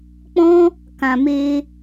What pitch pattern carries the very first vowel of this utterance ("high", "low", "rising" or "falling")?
high